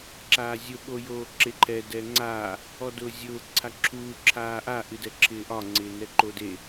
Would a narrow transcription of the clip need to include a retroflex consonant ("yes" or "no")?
no